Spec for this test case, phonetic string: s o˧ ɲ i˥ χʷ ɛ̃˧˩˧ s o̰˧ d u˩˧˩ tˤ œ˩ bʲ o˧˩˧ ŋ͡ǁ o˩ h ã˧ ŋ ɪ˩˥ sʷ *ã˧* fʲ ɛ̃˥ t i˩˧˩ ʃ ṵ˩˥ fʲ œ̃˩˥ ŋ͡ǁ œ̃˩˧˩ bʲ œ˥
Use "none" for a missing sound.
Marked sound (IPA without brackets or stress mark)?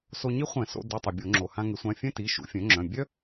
ã˩˧˩